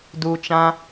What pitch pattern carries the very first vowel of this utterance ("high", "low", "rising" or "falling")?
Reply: low